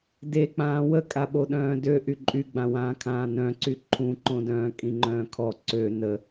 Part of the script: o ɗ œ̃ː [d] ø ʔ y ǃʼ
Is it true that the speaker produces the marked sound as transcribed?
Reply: yes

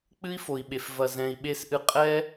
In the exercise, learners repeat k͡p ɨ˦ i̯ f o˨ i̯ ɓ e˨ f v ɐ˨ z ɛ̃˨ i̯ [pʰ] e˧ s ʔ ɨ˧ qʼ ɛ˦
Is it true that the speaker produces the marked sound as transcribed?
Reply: no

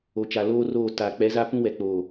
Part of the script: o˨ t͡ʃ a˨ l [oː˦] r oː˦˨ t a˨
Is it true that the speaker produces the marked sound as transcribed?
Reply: yes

